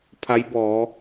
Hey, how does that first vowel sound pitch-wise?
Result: rising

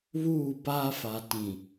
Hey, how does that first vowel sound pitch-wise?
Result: falling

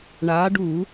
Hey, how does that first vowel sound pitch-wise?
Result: rising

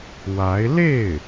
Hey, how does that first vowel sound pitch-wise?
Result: rising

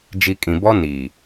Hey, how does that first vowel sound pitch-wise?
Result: low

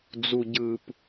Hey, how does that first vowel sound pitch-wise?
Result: low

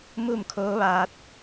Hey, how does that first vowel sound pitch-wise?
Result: falling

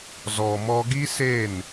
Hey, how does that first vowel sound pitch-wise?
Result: low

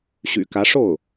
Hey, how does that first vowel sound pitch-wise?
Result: low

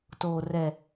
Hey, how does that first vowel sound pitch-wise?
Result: low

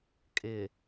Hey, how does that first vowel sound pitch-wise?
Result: low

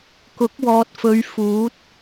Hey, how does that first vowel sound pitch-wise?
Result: rising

